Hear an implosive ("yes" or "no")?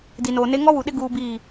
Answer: yes